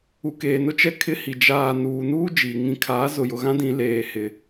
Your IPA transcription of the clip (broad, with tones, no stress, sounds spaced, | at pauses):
u˨ k eː˨ n ʊ˦ t͡ʃ ɛ˦ kʰ ɪ˦ h i˨ d͡ʒ aː˨ n uː˨ n uː˦ d͡ʒ iː˨ ŋ ĩ˨˦ kʰ aː˨˦ z ʊ˨ j ʊ˨ ɣ ã˦ d ĩ˦ l eː˨ h ɪ˨